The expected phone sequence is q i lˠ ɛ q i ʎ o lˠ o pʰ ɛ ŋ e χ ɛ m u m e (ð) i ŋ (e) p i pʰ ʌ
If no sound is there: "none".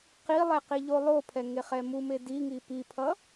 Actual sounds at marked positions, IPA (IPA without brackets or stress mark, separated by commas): d, i